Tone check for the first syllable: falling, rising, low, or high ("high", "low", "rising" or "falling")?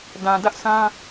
low